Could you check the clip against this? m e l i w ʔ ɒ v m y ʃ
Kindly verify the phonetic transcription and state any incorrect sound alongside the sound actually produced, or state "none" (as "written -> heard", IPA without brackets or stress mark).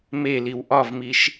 y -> i